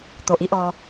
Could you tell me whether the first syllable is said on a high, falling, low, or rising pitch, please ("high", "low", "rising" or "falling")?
low